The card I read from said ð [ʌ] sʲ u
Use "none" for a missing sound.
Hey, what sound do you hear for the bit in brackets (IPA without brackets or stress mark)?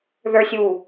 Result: ə˞